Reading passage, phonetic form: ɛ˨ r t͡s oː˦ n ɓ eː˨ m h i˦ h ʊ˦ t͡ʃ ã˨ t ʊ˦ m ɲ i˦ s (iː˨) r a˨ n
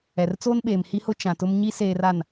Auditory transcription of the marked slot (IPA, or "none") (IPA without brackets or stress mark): eː˨